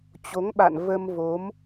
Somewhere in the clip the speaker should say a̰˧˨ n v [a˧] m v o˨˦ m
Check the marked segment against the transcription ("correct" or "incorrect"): incorrect